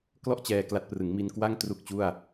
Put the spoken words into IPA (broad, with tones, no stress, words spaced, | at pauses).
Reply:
klɔ˥˩ʔ t͡ɕɛː˧kla˦˥t̚ prɯ˩˦ŋmi˧nkwa˥˩ŋ tru˥˩k̚t͡ɕu˥˩a̯